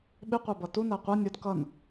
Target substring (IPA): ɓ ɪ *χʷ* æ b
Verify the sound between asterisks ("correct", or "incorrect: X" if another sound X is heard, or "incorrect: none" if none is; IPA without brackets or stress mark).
incorrect: qʷ